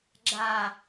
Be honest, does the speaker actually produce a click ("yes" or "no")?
yes